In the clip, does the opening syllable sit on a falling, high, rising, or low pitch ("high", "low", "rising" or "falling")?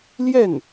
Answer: falling